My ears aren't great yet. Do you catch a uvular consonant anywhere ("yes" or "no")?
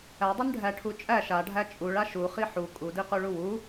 yes